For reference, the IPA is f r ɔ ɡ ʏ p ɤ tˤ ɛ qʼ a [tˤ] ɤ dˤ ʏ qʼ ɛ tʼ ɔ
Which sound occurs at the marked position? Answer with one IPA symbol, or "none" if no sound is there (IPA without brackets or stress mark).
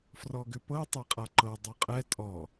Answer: ǃ